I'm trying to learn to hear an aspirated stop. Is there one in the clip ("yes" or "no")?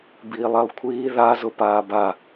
yes